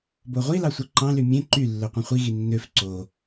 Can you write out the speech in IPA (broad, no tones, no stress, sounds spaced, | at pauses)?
b o ʁʷ i l ɑ sʷ ɯ ǃ ɑ̃ l y mʲ ẽ ǃ y lː ø qʷ ẽ χʷ i ɣ i nː ø f ǀ o